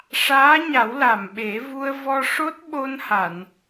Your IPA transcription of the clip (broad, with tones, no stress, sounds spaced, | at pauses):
ʂ aː˧˥ ɲ a˨˩˦ w l a˨˩ m ɓ e˨˩˦ v u˧ ə̯ v ɔ˧ ʂ o˦˥ t̚ ɓ o˧ n h a˨˩˨ n